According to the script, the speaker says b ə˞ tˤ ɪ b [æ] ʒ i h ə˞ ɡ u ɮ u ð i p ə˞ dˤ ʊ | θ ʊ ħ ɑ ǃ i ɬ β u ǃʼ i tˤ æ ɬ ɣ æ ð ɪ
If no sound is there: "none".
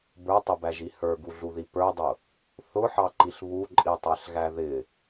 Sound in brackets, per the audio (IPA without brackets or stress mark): æ